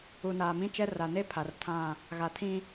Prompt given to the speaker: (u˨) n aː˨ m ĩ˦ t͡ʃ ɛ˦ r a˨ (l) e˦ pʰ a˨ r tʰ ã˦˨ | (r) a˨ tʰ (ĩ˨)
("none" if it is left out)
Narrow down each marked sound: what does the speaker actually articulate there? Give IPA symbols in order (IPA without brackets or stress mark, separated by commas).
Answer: u˨, n, ɣ, ĩ˦